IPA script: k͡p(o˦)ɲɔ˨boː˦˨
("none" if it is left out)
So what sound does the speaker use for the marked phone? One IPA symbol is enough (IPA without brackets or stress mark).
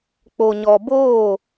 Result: o˨